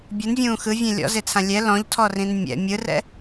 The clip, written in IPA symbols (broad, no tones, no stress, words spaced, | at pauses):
bʲɯnvʲũː xɯvʲẽ lʲɔ̰zet͡sʰã lʲɛ lɔ̃ʎtʰɔrĩn mʲɛ̰ mʲɯrɛ̰